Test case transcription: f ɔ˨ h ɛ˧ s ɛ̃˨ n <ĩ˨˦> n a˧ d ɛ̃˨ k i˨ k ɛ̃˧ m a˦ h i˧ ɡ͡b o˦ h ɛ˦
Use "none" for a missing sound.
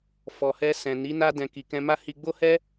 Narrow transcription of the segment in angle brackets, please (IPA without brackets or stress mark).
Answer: i˨˦